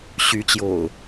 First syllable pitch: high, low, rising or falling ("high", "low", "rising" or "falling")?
rising